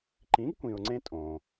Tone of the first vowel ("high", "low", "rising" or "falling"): rising